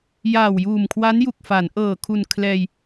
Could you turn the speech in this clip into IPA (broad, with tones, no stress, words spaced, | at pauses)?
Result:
jaː˨˩wjuː˨˩m kʰwa˦˥nju˨˩k̚fa˩˦nʔɤː˨˩ kʰu˨˩n kʰlɛː˧j